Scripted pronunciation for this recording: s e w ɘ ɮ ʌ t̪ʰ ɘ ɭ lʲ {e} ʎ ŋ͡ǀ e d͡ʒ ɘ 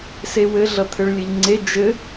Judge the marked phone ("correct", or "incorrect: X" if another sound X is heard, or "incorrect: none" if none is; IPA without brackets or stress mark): incorrect: ɘ